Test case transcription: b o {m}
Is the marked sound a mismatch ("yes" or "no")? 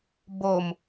no